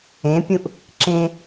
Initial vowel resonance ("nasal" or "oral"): nasal